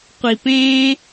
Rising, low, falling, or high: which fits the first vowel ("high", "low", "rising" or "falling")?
low